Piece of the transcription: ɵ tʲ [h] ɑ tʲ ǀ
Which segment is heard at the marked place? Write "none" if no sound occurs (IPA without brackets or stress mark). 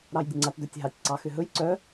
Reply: ɦ